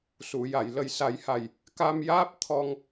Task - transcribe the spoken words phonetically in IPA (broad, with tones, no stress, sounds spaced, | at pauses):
s u˨˩˨ j a˨˩˨ j l ə˨˩ j s a˨˩˦ j h a˨˩ j | k a˧ m j aː˦˥ p̚ t̪ʰ ɔ˧ ŋ